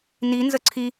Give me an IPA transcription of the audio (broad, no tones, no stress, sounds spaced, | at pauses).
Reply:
n i n z ə ǀʰ i